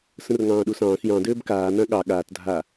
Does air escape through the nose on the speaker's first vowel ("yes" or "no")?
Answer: yes